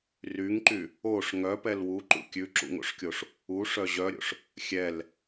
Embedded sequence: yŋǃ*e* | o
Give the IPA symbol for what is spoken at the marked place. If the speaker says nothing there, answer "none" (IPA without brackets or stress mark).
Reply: y